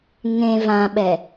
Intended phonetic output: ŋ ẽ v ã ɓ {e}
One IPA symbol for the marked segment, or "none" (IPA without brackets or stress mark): ɛ